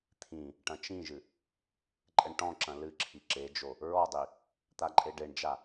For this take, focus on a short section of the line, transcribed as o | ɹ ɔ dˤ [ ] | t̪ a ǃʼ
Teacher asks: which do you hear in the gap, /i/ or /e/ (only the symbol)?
i